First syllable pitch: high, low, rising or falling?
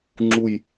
falling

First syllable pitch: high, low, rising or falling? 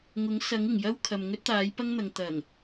rising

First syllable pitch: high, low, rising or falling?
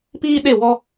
high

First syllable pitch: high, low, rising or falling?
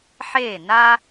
falling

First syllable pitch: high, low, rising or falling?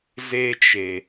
high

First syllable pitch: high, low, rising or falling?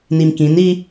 low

